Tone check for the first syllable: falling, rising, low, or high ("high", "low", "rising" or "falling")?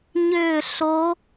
falling